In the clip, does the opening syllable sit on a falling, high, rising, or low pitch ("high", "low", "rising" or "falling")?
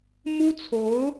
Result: high